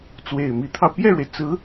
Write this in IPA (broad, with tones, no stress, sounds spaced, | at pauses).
t͡s w e˨˩ ɪ̯ m i˧˥ t̪ʰ ɑ˧ ʊ̯ p j ɛ˥˩ ɻ w e˩ ɪ̯ t͡s ɹ̩˧˥